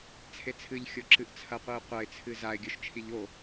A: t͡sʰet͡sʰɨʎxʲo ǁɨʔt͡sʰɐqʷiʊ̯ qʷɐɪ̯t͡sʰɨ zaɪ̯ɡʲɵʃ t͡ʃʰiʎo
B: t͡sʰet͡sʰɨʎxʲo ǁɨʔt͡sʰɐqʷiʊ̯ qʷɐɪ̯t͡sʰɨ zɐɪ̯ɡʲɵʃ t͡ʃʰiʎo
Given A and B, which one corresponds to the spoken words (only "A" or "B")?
A